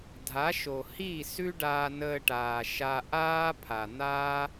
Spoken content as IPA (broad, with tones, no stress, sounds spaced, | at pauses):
dʱ a˨˦ ʃ o˨ h i˦˨ s ʉ˦ ɖ aː˧ n əː˧ ʈ aː˨ ʃ a˧ ʔ aː˦ pʰ a˨ n̪ aː˦